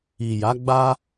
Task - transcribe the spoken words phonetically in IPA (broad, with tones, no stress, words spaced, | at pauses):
i˨ja˨˦ɡ͡ba˦